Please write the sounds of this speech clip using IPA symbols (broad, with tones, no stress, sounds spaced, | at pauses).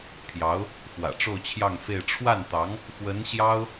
pʰ j ɑ˧˥ ʊ̯ | x w ä̰˨˩ ʈ͡ʂ o˥˧ ʊ̯ t͡ɕʰ j ɑ˥˧ ŋ f e˥˧ ɪ̯ ʈ͡ʂʰ w a˥˩ n t̪ ɑ˧˥ ŋ | x w ə˧˥ n ɕ j ɑ˥ ʊ̯